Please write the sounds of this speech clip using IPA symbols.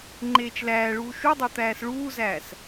ŋ͡ǃ eː t͡ʃ l æː ɭ uː ʃ u dˤ o t̪ æː s ɭ uː z æː s

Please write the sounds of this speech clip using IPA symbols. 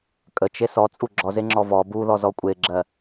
kʼ ə t͡ʃ e s ɔ t͡sʼ u ɡ͡ǁ ɔ z e ŋ͡ǁ ɔ v ɔ b u ð ɔ z ɔ kʷʼ e ɡ͡ǁ ɜ

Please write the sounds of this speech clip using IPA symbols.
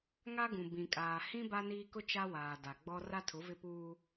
ŋ a˦ ɡ ũ˨ b ĩ˨ kʼ aː˨ h ĩ˦ b a˦ n iː˦ k ʊ˦ t͡ʃ a˦ w aː˨ d a˨ ɡ͡b ɔ˦ r a˦ tʰ ʊ˨˦ v ɪ˦ p uː˦

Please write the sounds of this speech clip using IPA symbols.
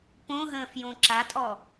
p õ ɦ ə̃ː f j õ ǁ a tʼ ɔ

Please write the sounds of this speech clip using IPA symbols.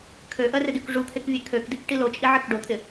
kʰ ø ʔ ɜ r ɪ d y k ʐ u t̪ʰ e k vʲ e kʰ ø k d i k ʈ i l o t͡ʃʼ i ʕ ɪ k ɖ o t̪ʰ ɪ

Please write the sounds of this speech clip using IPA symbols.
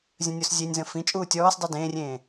zʲ ə̃ nʲ o s zʲ e nʲ z ə̃ f ĩ t͡ʃʼ uː tʲ ɔː s dˤ ɤ d ẽː rʲ ẽː

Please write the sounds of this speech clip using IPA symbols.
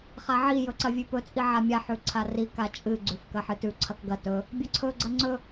χ a ʕ i j ɵ ǀ ɐ vʲ ʉ p ɵ t͡sʼ i ʕ a mʲ a ħ ʉ ǀʰ a r i k a t͡ʃʼ ɨ ɡ͡ǀ ʉ f k ɐ ħ ɨ t ʉ ǀʰ ɐ k ɡ ɐ t ɵ | bʲ ɐ ǀʰ ɵ ɡ͡ǀ ɐ ŋ͡ǀ ɵ

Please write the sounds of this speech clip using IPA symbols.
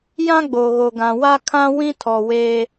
j ã˦ ɡ͡b o˨ ɣ o˨ ɡ ã˨ w a˦ kʰ ã˦ w ĩ˦ tʰ ɔ˨ w eː˦

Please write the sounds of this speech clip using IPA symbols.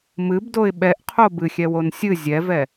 m ɨ b d o ɪ̯ ɓ ɛ ʔ qʰ o b ɨ xʲ ɛ w o n sʲ ɨ zʲ ɛ v ɛ

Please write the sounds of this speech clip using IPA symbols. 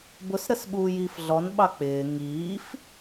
b ʊ s ɾ ə s ɓ uː j iː f ɮ ɔ n ɓ ɑ k͡p ɪː ŋ iː f

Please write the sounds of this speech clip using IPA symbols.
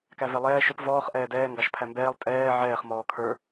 k æ v ɛ lˠ ɛː ʃ ʊ p v ɔː χ ʔ ɛː d ɛː ŋ ɡ ɑ ʃ pʰ æ m b ɛː lˠ tʼ ɛː ʕ ɛː χ m ɔː kʰ ə˞

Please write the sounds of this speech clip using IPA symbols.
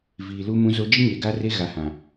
v iː˨ l u˦ m ũ˦ z o˦ d͡ʒ i˦ ɲ eː˨ ɡ a˦ r e˦ ɣ a˨ h ã˨

